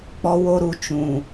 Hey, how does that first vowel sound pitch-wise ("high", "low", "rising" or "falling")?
high